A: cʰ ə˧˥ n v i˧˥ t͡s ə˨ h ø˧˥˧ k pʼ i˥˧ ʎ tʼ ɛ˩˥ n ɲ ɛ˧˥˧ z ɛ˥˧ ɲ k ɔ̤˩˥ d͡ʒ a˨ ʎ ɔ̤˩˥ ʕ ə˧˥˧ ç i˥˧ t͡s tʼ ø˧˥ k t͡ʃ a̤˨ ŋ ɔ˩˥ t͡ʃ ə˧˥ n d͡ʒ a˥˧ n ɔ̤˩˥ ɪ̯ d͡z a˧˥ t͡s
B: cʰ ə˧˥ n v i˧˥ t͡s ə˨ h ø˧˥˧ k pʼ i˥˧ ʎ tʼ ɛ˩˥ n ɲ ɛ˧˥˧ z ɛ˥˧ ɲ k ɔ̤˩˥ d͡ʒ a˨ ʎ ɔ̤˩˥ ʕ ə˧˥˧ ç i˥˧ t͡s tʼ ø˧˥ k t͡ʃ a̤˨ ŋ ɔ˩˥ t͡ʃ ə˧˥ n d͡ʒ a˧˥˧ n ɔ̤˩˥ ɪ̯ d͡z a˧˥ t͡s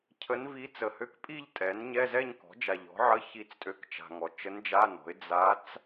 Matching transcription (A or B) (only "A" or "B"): B